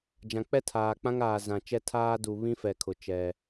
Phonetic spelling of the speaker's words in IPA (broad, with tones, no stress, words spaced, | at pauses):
d͡ʒã˨k͡pɛ˦tʰaː˨ k͡pã˦ŋ aː˨zã˨ t͡ʃɛ˦tʰaː˦ du˨βĩ˦fɛ˨kʰʊ˨ t͡ʃɛ˦